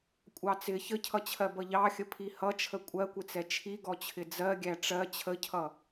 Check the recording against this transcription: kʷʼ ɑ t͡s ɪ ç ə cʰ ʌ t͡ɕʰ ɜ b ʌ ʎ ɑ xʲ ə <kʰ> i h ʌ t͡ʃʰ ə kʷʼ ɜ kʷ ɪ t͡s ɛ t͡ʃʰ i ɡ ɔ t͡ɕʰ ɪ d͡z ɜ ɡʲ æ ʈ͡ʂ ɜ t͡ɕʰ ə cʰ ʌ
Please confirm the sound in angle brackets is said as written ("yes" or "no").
no